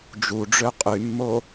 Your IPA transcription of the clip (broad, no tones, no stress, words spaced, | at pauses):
d͡ʒuɖ͡ʐø qʼymːo